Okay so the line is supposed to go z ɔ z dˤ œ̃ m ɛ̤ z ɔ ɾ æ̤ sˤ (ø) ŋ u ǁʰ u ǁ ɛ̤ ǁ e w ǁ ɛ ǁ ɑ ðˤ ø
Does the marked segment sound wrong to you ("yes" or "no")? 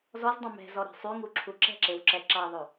yes